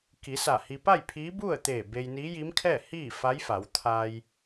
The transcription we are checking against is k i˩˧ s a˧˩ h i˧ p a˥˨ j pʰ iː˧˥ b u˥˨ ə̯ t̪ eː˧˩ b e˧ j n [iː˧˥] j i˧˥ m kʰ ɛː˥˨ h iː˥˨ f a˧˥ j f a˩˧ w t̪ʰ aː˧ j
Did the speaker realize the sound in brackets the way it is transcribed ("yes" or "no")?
yes